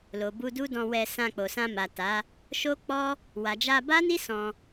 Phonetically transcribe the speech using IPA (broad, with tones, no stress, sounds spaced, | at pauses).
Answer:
l o˨ b u˧ d u˦ d ɔ̃˧ w ɛ˧ s ã˧ k͡p o˨ s ã˧ m a˨ t a˨˦ | ʃ o˦ k͡p ɔ˦ | w a˨ d͡ʒ a˧ b a˦ n i˦ s ɔ̃˧